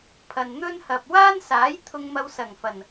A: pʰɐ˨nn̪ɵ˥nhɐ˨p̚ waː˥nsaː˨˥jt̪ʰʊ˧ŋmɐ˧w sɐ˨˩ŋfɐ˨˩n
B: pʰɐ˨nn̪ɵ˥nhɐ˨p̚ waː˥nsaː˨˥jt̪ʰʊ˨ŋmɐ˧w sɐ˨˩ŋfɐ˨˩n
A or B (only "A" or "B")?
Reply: A